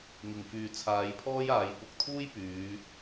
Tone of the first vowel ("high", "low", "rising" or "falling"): low